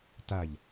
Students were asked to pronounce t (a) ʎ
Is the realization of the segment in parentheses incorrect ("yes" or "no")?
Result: no